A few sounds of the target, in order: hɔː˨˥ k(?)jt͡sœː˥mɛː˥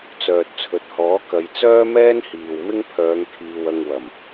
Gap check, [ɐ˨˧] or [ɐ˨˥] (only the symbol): ɐ˨˧